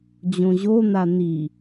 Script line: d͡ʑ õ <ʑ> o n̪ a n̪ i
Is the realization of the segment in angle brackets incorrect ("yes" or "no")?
no